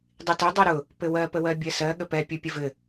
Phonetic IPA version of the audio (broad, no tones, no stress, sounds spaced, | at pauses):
dˤ i t ʊ dˤ i ɾ ʊ | p ɘ w ɜ p ə w ɜ bʲ ɜ s ɜ ɠ ə p ɛ pʲ u pʲ ə v ɘ